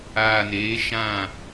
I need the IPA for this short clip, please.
aː˨ n eː˨˦ ʃ ã˦˨

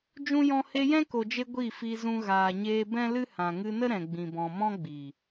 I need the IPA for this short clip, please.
d͡ʒ ũ˧ j ɔ̃˧ h e˧ j ɛ̃˦ k o˨ d͡ʒ e˧ ɡʷ i˦˨ f i˧ z ũ˧ ɣ aː˨ ɲ eː˧ b ɛ̃˦ l ɨ˦ h ã˨ ŋ ɨ˧ n ə˦ ɾ ɛ̃˨ ɡ͡b ĩ˨ b ɔ̃˨ m ɔ̃˦ ɡ͡b i˨

